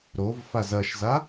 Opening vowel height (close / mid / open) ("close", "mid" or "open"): mid